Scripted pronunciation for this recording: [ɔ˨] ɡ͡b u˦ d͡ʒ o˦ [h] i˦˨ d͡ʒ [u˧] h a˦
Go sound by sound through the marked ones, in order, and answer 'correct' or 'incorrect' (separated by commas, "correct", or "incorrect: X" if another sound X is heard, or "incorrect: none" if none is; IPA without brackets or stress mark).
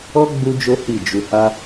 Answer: incorrect: ɔ˦, correct, correct